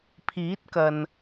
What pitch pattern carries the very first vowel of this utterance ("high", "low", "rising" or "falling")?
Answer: rising